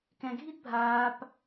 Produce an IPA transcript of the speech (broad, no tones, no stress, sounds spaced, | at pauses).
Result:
k ɛ̃ ɡʱ i d bʱ aː p